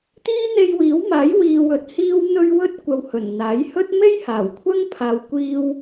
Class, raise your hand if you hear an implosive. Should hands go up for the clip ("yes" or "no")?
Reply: no